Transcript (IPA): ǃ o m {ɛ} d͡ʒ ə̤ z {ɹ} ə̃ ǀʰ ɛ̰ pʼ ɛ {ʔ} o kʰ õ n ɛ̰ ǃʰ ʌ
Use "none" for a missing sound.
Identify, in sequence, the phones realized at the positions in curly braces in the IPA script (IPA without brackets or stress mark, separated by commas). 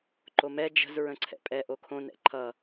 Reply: ɛ, ɹ, ʔ